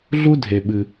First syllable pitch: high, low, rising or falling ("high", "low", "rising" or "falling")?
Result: high